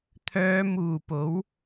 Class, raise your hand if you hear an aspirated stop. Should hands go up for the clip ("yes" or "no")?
yes